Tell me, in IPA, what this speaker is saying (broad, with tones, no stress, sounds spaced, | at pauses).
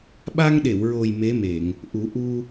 ɓ a˧ ŋ ɗ e˨˩˨ w ɹ o˨˩ j m e˧˥ m e˨˩˨ ŋ | ʔ u˨˩˦ ʔ u˧